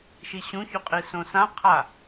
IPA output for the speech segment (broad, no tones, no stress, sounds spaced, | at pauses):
ʃ i ɕ ũ ç u qʼ i s õ s ã qʰ a